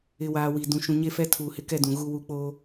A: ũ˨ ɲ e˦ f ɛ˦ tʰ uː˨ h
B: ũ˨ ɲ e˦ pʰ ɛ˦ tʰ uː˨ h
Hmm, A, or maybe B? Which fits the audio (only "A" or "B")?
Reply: A